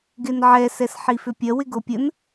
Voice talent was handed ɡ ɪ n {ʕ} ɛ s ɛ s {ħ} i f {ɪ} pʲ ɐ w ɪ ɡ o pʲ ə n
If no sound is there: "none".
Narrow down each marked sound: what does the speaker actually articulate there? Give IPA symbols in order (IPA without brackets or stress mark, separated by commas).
ʕ, ħ, ʏ